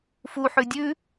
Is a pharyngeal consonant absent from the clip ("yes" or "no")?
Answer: no